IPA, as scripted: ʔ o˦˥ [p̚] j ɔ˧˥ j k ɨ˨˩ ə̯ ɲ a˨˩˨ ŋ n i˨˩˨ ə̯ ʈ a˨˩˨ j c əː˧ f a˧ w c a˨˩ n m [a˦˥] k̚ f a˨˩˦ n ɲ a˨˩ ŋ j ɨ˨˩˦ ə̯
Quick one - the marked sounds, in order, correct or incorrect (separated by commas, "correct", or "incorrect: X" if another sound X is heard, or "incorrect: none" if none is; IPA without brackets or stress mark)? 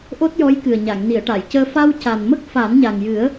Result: incorrect: t̚, incorrect: ə˦˥